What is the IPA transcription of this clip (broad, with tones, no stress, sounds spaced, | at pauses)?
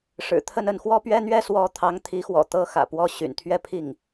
ʂ ɻ̩˨˩ t̪ʰ ə˥˧ n ə˥˩ n x w ɔ˥ p ɥ ɛ˥ n̪ ɥ ɛ˥ s w ɔ˧˥ t̪ʰ ɑ˧˥ ŋ t̪ʰ i˧˥ x w ɔ̰˨˩ t̪ ɤ˥ x ä̰˨˩ p w ɔ˥˩ ɕ y̰˨˩ n t̪ʰ ɥ ɛ˥ pʰ i˥˩ ŋ